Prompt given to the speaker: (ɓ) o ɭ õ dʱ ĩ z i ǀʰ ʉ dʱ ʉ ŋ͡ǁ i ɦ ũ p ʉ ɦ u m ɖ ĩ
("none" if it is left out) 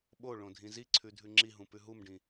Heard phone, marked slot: ɓ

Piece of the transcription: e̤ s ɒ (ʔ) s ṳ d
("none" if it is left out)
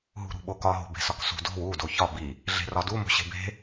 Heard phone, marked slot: k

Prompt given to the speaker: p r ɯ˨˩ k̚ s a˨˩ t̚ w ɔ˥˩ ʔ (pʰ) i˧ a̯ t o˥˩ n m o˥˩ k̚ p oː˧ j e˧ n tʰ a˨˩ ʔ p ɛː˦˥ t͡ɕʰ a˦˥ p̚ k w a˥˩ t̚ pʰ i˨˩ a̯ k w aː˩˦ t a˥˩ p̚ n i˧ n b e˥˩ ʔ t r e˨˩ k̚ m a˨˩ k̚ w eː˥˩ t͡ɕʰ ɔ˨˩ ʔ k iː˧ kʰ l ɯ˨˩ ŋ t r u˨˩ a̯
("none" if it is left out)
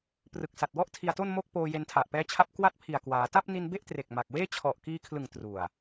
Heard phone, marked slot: tʰ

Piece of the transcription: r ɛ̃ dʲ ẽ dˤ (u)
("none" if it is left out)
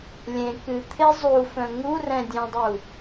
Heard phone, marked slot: u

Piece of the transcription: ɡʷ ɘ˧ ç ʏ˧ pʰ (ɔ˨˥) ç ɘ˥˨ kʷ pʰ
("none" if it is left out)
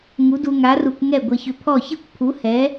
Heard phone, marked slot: ɔ˥˨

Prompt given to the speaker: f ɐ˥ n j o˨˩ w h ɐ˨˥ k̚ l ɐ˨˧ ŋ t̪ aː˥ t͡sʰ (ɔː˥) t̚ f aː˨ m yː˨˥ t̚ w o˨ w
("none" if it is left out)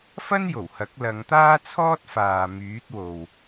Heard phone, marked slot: ɔː˥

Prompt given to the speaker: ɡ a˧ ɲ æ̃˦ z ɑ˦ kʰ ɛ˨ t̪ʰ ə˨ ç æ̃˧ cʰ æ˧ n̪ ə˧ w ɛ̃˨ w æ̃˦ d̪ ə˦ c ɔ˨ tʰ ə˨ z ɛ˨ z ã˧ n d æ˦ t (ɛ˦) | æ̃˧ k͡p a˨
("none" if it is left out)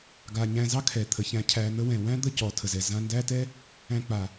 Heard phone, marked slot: ɛ˦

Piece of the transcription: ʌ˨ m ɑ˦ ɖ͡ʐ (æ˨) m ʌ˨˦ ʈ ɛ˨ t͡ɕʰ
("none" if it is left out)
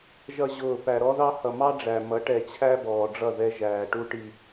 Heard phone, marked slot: æ˨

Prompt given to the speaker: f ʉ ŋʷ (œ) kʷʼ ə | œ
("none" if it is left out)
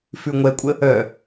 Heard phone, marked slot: ɛ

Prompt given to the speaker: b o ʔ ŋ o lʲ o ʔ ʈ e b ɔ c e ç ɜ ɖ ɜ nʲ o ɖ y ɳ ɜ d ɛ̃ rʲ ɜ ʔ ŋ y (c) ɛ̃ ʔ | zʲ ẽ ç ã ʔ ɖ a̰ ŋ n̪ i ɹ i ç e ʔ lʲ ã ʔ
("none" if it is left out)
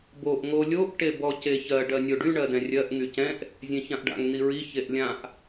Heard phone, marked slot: c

